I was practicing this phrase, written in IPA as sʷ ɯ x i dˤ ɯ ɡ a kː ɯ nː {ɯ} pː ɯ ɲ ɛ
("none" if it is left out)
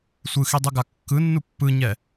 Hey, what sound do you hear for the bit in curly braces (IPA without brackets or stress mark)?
u